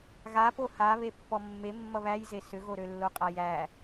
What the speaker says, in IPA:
ɣa poha βepːɔmːe mːʌβæjze sʏɣoɾølːo qʼajæ

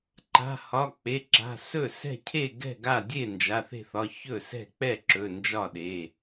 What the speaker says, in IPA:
ǃa̤˩˧˩hɒ˩˧˩ k͡pe˩˧˩ǁa̤˩˧˩ sɵ˥˩sɛ̤˥˩ cʰe˥˩ɡɛ̤˥˩ɡa˥˩ dʲe˥˩nd͡ʒa˩˧˩ θe̤˥˩θɒ˩˧˩ çɵ˥˩sɛ̤˥˩ k͡pɛ˥˩ǁɵ˩˧˩ nd͡ʒɒ˥˩ɗe˩˧˩

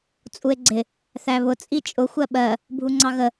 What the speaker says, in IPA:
t͡sʼue̯ɡ͡ǀɪ | θæβʊ t͡sʼit͡ʃʼʊ xʷɜɓɜ | bʱuŋ͡ǀɑɣə

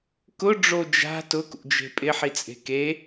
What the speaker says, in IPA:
kʊɖ͡ʐo d͡ʒa̤ tʊkṵd͡ʒe̤ pʼɪħit͡sʼe̤ ke

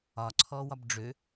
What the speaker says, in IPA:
ɒǀʰɔwɒb ɖ͡ʐø

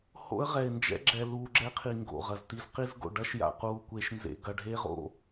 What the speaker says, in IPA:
ho̰˦ə̯ʁɛ˨ɪ̯nd͡ʒɛ̰˦ ɡ͡ǁɛ˨luː˨ ɡ͡ǁɛ˦qʰi˨ ŋɡo̰˨ʁɐ˨zti˦z qi˦zɡo̰˨ ɖɐ˦ʃja̰˨ quː˨kʷeː˨ʃnzḛ˨ ɡɐ˨ɖʱe˦ ʁo̰˦

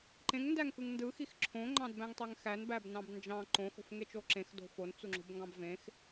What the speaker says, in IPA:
ǃẽŋndæŋkɯŋ ndɯxix ǁʰõŋ͡ǃɑ̃dbæ̃ŋtˤøŋ xænbæbnɑ̃b nd͡ʒɑ̃ ǃõxo̤fŋet͡ʃo ǁẽxdo̤ font͡suŋ͡ǁo̤bŋɡɑ̃b vẽx

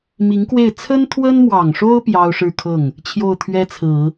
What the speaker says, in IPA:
mi˧˥ŋkwe˥˩ɪ̯ t͡sʰə˥nt̪ʰwə˥nmwɑ˨˩ŋʂo˥ʊ̯ pjɑ˥ʊ̯ʂɻ̩˥˧kʰɤ˥˩ŋ | t͡ɕʰjo˥˩ʊ̯t̪ʰɥɛ˥t͡sʰɹ̩˨˩˦

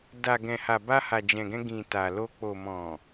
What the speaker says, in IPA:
da˨ ɡɛ̃˨ha˨ba˧ ha˨d͡ʒɛ̃˨ɡɛ̃˧ ɡĩ˨ ta˨lo˧ k͡po˨mɔ̃˨

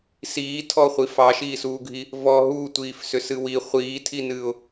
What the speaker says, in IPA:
siːtʰɔχʷi fɑʃiːsuːɡʱi | vɔ ɦuːtʷiːfsʏsɨ wi χʷiːtʰinɨːʊ̯

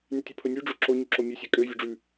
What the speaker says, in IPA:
nytʲopʰɵnʲʉ ɖ͡ʐoǁo ɲyǁomʲʉ sʲækʼø vʲøɖ͡ʐʉ

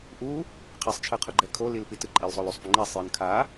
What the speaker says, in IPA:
ʔu | qʰesˤt͡ʃʰɯqʰoɡ͡ǃɛ kʰolilpit ɯǃʼilsˤolusˤ puŋ͡ǃesˤjɯn kʰa

